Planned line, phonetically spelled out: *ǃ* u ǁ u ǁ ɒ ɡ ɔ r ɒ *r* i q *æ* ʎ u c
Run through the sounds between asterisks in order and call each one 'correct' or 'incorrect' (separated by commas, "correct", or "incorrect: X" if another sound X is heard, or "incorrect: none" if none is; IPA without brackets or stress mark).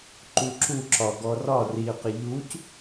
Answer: correct, correct, incorrect: ə